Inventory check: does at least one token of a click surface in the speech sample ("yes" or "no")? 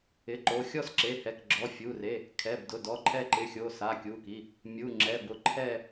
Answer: yes